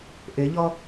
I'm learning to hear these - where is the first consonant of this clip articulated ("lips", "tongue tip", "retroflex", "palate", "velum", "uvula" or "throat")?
throat